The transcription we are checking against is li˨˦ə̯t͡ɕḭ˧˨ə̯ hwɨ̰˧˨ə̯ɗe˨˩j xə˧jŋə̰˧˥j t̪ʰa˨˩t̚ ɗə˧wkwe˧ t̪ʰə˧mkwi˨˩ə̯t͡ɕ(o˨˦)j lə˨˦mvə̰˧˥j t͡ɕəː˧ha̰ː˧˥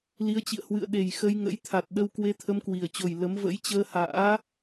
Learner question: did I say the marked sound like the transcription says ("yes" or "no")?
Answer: no